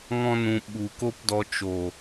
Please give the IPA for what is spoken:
ŋ ɔ̃˦ n ũ˧ ɓ u˨ k o˦ p d ɔ˧ t͡ʃ o˨

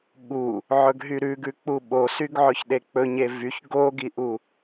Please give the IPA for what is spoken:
ɠ u | ʕ ɵ ɡ ɦ y ɾ ʉ ɡ ʉ k͡p u ɓ o s y ɡ ʕ ɵ ç ɗ e k͡p ɵ ɲ e v y ç ɡ o ɡ i ʔ u

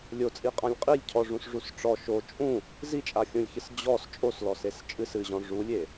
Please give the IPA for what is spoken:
lʲ o t͡sʼ i qʼ ã lʲ qʼ i lʲ cʰ ɔ ʐ ũ s ʐ u s ʈ͡ʂ ɔ ʃ o t͡ʃʼ ũ | z i t͡ʃʼ a xʲ ũ lʲ ç ɨ s d͡ʑ ɔ s t͡ʃʼ o s l ɔ s e s t͡ʃʼ ɨ s ɨ ʑ ɔ̃ ʐ u lʲ e

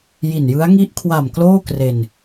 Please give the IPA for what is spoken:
j i˨˩ n j ɯ˦˥ a̯ ŋ i˦˥ ʔ kʰ w a˨˩ m k l oː˥˩ k r e˧ n

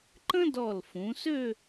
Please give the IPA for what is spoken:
ǃ ə̃˥ d ɔ˧˩ l f ũ˩˧ s ø˥˧

